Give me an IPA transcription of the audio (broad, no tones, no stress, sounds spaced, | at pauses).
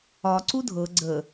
ɒ ǀ u dʱ ɤ ɡ͡ǀ ə